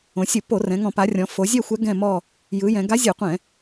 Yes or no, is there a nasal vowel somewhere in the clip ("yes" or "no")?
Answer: yes